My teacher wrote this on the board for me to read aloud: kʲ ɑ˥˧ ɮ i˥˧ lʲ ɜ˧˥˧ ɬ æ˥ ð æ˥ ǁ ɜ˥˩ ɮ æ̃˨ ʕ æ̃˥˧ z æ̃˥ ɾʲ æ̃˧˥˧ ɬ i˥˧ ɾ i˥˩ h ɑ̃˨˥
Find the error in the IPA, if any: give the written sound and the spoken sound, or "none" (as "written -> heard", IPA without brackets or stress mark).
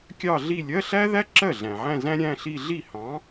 ɾ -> ɮ